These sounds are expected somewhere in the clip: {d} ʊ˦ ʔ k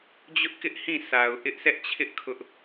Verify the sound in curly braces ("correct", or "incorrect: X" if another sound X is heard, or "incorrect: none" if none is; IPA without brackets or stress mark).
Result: incorrect: d͡ʑ